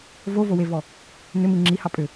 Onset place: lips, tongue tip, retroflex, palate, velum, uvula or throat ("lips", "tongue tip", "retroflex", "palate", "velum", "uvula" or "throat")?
lips